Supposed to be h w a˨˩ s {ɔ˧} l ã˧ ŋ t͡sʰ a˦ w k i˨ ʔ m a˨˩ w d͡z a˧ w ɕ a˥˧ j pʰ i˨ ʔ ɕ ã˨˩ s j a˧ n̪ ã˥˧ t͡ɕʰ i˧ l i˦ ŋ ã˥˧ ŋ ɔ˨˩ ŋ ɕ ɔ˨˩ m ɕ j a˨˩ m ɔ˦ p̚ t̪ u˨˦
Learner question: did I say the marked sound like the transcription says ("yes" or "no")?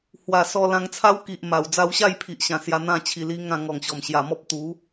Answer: yes